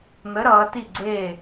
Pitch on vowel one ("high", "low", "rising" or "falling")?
rising